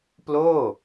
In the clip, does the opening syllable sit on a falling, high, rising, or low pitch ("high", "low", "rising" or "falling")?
falling